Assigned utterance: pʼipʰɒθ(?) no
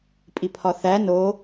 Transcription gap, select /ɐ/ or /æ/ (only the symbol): æ